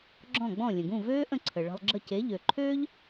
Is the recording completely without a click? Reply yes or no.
no